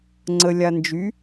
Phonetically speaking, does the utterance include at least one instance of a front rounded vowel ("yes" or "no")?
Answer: yes